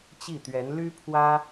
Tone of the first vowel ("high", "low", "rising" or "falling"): falling